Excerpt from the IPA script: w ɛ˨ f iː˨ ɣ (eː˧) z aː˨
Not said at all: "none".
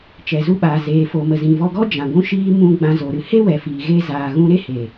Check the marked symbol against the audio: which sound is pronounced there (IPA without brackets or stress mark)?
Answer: e˧